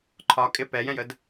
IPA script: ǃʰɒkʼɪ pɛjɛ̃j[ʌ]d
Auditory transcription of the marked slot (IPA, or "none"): ə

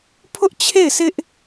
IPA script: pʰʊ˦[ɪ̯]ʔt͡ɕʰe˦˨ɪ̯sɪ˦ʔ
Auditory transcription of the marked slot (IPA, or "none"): none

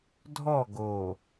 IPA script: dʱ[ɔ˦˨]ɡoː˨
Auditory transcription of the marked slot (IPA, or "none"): ɔ˦˨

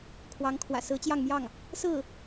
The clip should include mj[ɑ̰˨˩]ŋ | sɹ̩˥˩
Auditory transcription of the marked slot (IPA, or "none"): ɑ˥˩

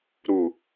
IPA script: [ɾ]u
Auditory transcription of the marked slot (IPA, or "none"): ɾ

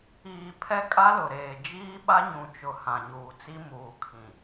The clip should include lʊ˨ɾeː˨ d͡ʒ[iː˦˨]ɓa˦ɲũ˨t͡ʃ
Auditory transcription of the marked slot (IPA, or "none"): iː˦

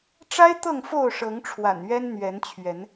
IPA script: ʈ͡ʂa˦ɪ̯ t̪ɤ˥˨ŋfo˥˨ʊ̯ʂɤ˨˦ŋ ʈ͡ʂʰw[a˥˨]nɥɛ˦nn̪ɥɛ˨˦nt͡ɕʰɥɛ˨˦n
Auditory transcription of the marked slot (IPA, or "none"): a̰˨˩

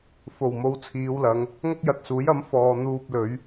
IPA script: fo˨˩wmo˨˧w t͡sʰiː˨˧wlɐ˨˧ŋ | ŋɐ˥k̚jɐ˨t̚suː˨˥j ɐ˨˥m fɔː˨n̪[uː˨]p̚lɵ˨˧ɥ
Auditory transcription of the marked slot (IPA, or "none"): uː˧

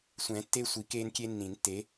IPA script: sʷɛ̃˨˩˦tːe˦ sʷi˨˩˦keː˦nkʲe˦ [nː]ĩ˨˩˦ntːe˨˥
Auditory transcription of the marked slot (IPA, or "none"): nː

